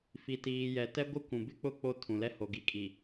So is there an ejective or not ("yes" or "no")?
yes